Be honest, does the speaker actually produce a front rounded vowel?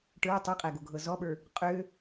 yes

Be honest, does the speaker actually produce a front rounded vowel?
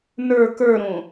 no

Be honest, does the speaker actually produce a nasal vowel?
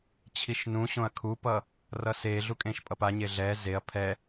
yes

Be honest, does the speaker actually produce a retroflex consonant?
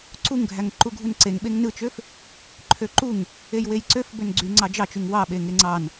no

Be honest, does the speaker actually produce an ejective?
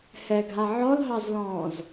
no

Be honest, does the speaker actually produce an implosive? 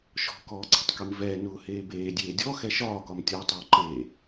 no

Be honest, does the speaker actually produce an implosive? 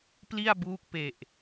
no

